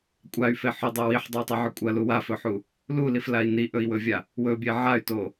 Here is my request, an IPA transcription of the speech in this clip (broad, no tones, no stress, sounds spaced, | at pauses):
kʷʼ a y̯ f e ħ ɵ dˤ ɵ w i ħ dˤ ɵ y̯ tˤ i ʕ ɵ kʷʼ ɐ l u w a f ɵ ħ u | l u l i f l a i̯ n i ʔ ɵ i̯ w ɵ vʲ a | w ɵ bʲ e ʕ a y̯ t o